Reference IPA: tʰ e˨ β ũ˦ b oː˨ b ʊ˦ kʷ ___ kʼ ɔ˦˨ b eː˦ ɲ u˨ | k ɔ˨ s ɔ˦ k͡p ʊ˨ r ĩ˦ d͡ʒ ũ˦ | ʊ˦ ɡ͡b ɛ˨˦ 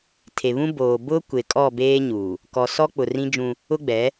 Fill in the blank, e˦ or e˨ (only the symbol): e˨